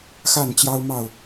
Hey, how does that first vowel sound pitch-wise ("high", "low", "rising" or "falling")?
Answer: falling